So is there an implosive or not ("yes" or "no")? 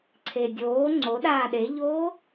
yes